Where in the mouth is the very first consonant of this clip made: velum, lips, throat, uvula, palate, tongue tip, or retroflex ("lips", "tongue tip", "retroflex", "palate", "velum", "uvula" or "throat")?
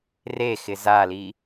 tongue tip